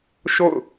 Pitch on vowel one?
falling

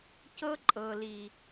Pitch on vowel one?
high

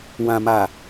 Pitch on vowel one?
low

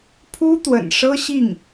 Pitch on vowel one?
high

